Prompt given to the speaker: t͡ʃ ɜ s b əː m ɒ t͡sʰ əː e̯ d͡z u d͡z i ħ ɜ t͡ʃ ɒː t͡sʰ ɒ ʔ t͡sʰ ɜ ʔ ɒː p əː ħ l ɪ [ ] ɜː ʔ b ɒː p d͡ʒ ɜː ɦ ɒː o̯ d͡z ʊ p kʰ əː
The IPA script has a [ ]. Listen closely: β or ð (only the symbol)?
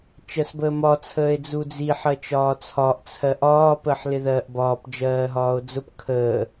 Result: ð